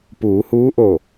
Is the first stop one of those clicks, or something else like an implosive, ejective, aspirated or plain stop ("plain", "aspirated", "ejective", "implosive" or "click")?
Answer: plain